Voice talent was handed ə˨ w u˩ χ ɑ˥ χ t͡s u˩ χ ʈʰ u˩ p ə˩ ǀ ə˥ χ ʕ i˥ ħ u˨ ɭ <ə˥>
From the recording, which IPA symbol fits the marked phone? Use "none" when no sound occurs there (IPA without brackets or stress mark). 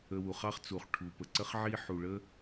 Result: ə˥